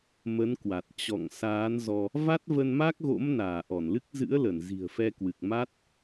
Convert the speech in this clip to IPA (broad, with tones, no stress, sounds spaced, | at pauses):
m ə˨˦ n k w a˨˩ t̚ t͡ɕ ɔ̰˧˨ ŋ s aː˨˦ n z ɔ˧ | v a˦˥ t̚ v ə˧ n m a˦˥ k̚ ɣ o̰˧˥ m n aː˧˩ ʔ ɔ˧˩ n l ɨ˦˥ k̚ z ɨ̰˧˥ ə̯ l ə˧˩ n z i̤˨˩ ə̯ f ɛ˧ k w ɨ˨˩ k̚ m a˦˥ t̚